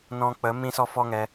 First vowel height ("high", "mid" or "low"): mid